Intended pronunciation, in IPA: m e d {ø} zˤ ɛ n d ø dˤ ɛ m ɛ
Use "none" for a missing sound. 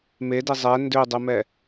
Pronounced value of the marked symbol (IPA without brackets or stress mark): e